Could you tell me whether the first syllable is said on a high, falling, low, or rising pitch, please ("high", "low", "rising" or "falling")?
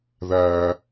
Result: high